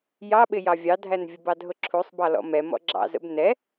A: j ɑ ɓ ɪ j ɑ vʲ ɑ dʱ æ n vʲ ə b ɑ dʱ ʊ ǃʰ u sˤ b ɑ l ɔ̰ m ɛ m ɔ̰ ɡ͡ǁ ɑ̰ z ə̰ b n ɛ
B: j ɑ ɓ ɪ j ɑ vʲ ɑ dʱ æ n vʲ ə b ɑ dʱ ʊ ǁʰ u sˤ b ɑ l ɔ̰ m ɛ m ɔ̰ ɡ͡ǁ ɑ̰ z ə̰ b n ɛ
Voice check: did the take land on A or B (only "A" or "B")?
B